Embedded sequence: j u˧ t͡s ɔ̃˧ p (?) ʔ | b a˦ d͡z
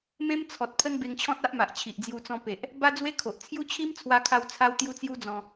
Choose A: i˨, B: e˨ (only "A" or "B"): B